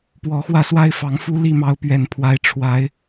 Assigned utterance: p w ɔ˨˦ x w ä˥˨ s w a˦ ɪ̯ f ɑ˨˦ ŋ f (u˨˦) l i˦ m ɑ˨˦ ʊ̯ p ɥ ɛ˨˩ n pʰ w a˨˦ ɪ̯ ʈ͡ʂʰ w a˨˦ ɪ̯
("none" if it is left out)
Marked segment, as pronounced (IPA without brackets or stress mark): u˦